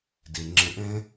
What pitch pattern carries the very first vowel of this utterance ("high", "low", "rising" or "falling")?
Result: low